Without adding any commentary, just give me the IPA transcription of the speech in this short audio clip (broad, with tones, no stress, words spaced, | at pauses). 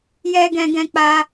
jɛ˦ ɡɛ̃˧ɡɛ̃˧ k͡pa˦